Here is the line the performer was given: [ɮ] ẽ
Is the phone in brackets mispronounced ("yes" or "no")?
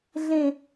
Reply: no